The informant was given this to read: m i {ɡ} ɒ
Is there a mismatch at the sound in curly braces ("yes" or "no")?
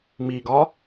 no